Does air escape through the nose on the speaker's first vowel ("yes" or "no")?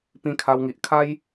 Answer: yes